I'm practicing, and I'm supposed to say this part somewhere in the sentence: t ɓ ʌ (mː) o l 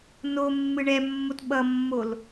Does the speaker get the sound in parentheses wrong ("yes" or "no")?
no